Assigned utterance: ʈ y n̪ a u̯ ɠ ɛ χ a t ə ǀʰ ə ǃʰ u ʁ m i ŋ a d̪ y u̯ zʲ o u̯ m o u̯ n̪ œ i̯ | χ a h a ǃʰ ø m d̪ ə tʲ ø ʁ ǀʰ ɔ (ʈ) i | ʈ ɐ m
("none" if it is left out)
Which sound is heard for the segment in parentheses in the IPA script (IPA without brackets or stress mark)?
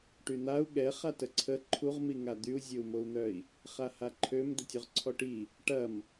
ʈ